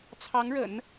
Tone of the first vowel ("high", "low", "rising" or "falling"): rising